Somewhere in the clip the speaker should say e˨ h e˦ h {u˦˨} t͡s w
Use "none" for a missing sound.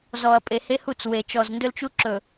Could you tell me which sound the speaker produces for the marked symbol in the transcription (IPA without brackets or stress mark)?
u˦˨